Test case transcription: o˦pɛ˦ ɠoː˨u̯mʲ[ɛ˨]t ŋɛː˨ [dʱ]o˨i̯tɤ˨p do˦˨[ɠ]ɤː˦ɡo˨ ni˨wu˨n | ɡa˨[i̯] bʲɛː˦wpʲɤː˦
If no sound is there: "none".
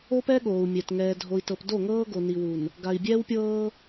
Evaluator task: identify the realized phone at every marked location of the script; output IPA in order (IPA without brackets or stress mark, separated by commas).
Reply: ɛ˨, dʱ, ŋ, i̯